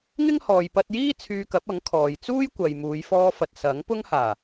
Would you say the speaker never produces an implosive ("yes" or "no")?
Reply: yes